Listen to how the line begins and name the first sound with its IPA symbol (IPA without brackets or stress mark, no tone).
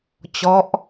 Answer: t͡ɕ